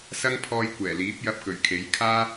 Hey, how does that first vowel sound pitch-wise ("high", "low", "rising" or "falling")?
high